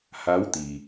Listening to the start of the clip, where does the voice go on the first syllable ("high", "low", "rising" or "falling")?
rising